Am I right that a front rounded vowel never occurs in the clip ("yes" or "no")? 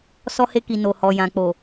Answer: yes